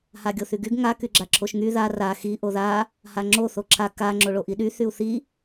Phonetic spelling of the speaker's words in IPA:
haɡʲoθyɡyɡ ŋa kyɡ͡ǁaǁʰoʃŋy ða ra xi ʔoða | haŋ͡ǁo θoǁʰa ka ŋ͡ǁoɭoʔiɗy θyu̯θi

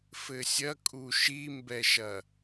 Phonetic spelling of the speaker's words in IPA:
fɘsʲɐkʼu ʃimbɛʃɐ

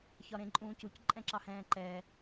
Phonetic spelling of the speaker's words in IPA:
çɒɾẽǃʼũːcuc ǃʼɛ̃ǁɑhɛ̃ːǃɛː

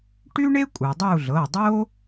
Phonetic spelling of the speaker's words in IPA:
ʈy˥ɳe˥ kʷʼɯ˩dˤu˦˨ɮɤ˩˧˩dˤo˥

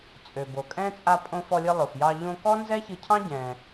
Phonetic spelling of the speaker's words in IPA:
t͡sʼø˩bo˩kʼɛ̃˥ t͡sʼa˧ pʼõ˧fɔ˧lʲɨ˧ lˠo˩fjɑ˧ ʎõ˧ kɔ˥nzɛ˥çɨ˧cʰɑ̃˥ ɟɛ̃˩

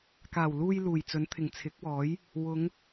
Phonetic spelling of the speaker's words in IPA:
kaː˨˩wluː˧j luː˨˩jt͡sɵ˨˥nt̪ʰɪ˨˩ŋ t͡sʰɪ˨˥k̚wɔː˨˥j | wʊ˨˧ŋ

